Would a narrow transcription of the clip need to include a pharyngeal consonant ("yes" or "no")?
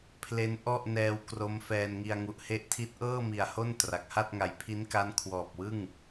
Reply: no